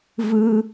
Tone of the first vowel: high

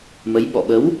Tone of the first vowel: rising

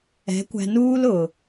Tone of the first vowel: rising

